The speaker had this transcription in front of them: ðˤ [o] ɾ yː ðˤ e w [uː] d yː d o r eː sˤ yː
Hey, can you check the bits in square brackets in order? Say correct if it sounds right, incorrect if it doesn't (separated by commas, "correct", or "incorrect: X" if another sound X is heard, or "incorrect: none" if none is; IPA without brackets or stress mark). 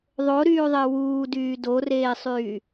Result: correct, correct